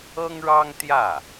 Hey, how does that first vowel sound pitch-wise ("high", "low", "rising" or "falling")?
high